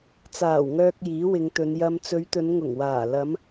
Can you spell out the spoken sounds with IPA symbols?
t͡s aː˨˩ w ŋ œː˨ k̚ j iː˨˥ w ɪ˨˧ ŋ t̪ ɵ˨˧ n j ɐ˨ m t͡s ɵ˨˧ ɥ t̪ ɵ˨˧ n ŋ ʊ˨˩ ŋ w aː˨˩ l ɐ˨˧ m

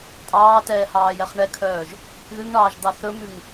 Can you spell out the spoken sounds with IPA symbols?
tʼ ɑː t ɛː h ɑː j ɛ χ ɳ ɛ kʰ œː ʒ | ð ʉ ŋ ɳ ɑː ʒ d̪ ɑ θ ɵ m ʉ ŋ

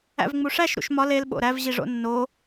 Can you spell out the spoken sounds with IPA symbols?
æ̰ v ŋ͡m u ʂ æ ʃ ɾ ṵ ʃ m ɒ l e l ɓ o̰ ɾ æ v ʑ i ʐ o̰ nː o

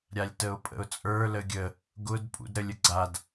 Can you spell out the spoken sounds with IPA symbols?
ɾʲ a lʲ t ə ʊ̯ pʼ ə̰ ʊ̯ t͡sʼ ə˞ l ə ɡʲ ə | ɡ ʊ d pʼ ṵ d ɾ ə lʲ ə ɡ͡ǀ a d

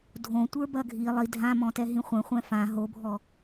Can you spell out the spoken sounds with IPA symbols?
dʱ õ tʷ ə˞ b ɐ ɡʱ i lˠ i dʱ ã m ɔ̃ t ɛ ɦ ĩ χʷ ɛ̃ χʷ ɛ̃ f ã ɦ o bʱ ɔ

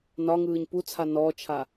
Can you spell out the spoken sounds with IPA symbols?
n ɒ ŋ ɯː ɲ p u t͡sʰ a n ɔ t͡ʃʰ a

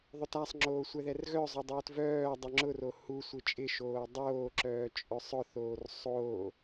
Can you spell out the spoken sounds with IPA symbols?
ðˤ ʊ t a sˤ ŋ͡ǁ oː sʷ ɛ ð ɛ r ɣ œ zˤ o dˤ oː t v œː dˤ œ ŋ͡ǁ ʊ r o h u sʷ ɪ t͡ʃʼ ɪ ʃ oː dˤ oː ǁ œː t͡ʃʼ œ sˤ ʊ θ oː r sˤ o

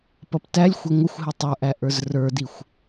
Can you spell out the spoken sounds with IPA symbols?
p ʌ p t æ lʲ xʷ ʌ ŋʷ ɪ xʷ ɦ ɪ tˤ ə˞ ʔ æ ʔ ə˞ z r ə˞ d i xʷ

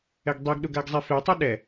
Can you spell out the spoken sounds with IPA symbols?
ɛ ɡ dˤ i ɡ ɗ ʊ ɡ a ɡ zˤ i f e tˤ e ɗ ɛ

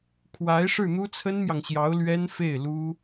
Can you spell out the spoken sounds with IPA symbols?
kʰ w a˧˥ ɪ̯ ʂ ɻ̩˥˩ n̪ u˥ t͡sʰ ə˥ n m j ɑ˨ ŋ ɕ j ɑ˧˥ ʊ̯ l ɥ ɛ˥ n f e˥˩ ɪ̯ l u˥

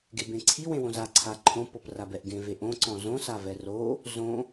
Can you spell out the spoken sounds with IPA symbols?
ɡ e b ẽ ǀʰ i w ẽ w õ z a ǀʰ a ǃʰ õ p ɤ p r a b ɛ ʔ ɡ ẽ v e ʔ õ ǀ ɔ̃ z õ s a v ɛ r o | z õ

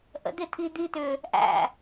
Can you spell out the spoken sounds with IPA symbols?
ʔ ə̰ d̪ ɪ t̪ʰ i d̪ i t̪ ʏ | ʔ æ̰

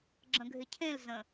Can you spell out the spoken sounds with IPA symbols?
ɡ͡ǁ ə̃ ɡʱ ɪ cʰ ẽ l z ə̃

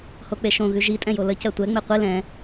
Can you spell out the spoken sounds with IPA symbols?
h o k͡p e ʃ õ ɣ ʉ ʒ i tʼ ɛ̃ j o l ə c ɜ tʷ ɛ ŋ͡m e qʷ i l ɛ̃

